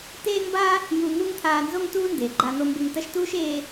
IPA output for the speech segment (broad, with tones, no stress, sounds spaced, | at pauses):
t eː˥ ŋ b a˥ | j u˧ ŋ u˥ ŋ t̪ʰ aː˧ n z o˥ ŋ t uː˥ n d eː˩ ɡ͡ǃ a˧ n̪ o˧ m b e˧ ŋ t ɐ˥ ʃ t uː˥ ʃ eː˥